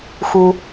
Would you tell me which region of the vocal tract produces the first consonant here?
velum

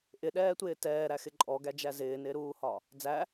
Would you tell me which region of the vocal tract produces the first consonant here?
throat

